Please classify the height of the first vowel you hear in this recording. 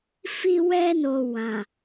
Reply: high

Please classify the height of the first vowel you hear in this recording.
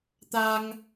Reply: low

